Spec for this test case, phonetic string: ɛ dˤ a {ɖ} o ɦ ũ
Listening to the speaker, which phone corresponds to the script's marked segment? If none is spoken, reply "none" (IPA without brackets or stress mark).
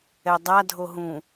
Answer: dʱ